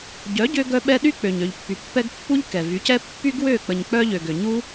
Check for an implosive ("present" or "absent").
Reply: present